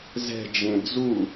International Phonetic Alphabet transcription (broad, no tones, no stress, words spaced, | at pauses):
zɛ̤d͡ʒẽ d͡zu